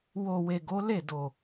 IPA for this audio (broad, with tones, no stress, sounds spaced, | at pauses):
w o˨ w e˨ ɡ o˨˦ l e˦˨ d o˨